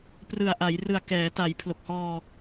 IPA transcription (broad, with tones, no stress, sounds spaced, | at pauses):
p r ɯ˨˩ a̯ ʔ a˩˦ j r ɯ˨˩ a̯ k ɛː˩˦ t a˩˦ j pʰ l o˨˩ k̚ h ɔː˧